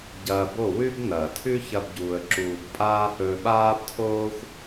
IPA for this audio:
ɟ ɐː˧ b o˦˨ w ʉ˦ b n ɐː˨ tʰ ʉ˦ ç ɐ˦ b ɟ uː˧ ə̯ ǁ uː˧ b pʼ aː˦ h ɵː˧ ɓ aː˦ b tʰ oː˦ xʷ

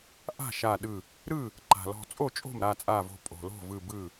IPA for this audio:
ʔ a̤˥˩ ʃ a˧˩ ɗ ɯ˧˩ | ɾ ɯ˥˩ | ǃ a̤˩ l ɔ̤˧˩ t͡sʼ o˥˩ t͡ʃʼ o̤˥˩ m ɾ a˥˩ t͡sʼ a˧˩ v o̤˧˩ pʼ o̤˩ l o̤˥˩ v ɯ˧˩ b ɯ˥˩

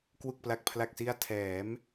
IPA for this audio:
k w u˨˩ k̚ p l a˨˩ k̚ pʰ l a˨˩ k̚ s i˧ a̯ tʰ ɛː˩˦ m

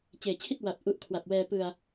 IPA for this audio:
t͡ɕ eː˨˩ t͡ɕʰ i˥˩ t̚ w a˨˩ p̚ ʔ u˦˥ ʔ kʰ w a˨˩ p̚ w ɛː˧ p ɯ˧ a̯

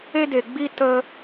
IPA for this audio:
e˦ d e˨ ɡ͡b i˦ t ə˦

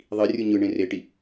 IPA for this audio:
ðˤ i rʲ ɯ ɲ ɯ ɳ ẽ r e ʈ i

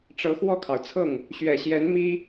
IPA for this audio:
ʈ͡ʂ ɤ˧˥ x w ɔ˥˩ kʰ ɑ˩ ʊ̯ t͡sʰ ɤ˥˩ ŋ | ɕ ɥ ɛ˨˩ ɕ j ɛ˧˥ n m i˥

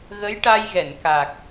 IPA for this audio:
ɣ ə˧˥ j ʈ a˧ j ɣ ɛ˨˩˨ n k a˨˩ k̚

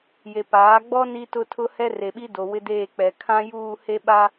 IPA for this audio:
j e˨ p aː˨˦ ɡ͡b ɔ˦ n i˦ t ʊ˦ tʰ ʊ˦ h ɛ˦ r e˨ ɓ i˦ d o˨ w ɪ˦ d eː˦˨ k͡p ɛ˨ kʰ ã˦ j uː˦˨ h e˦ ɓ a˦

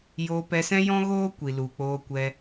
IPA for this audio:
j oː˧ p ɛ˧ s ɛ̃˦ j ɔ̃˦ ɣ oː˦ kʷ i˨ l u˨ k͡p oː˧ kʷ ɛ˧

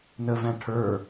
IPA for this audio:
n ə v æ̃ ʈʰ ə˞

